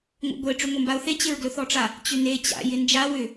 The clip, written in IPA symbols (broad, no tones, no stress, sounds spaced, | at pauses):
ŋʷ a̰ ɡʷ e ʈ͡ʂ ʏ ŋʷ ɐ m b a ʊ̯ θ e t͡ɕ ɪ ɹ ɡ l ɵ θ ɔ ʈ͡ʂ a | t͡ɕ ʏ n e t͡ɕ a̰ j ɪ n d͡ʒ a w ʏ